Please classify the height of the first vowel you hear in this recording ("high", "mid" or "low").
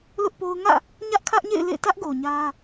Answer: high